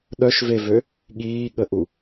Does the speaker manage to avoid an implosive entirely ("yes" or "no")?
no